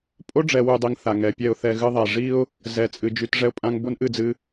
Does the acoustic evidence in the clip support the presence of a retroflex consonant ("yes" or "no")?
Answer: yes